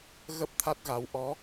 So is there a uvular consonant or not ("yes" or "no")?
no